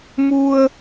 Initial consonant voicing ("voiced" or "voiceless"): voiced